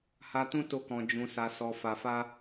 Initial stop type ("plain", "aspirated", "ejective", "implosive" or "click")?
plain